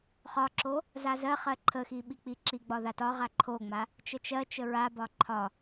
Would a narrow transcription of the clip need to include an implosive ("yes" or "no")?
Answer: yes